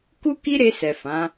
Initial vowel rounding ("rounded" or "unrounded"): rounded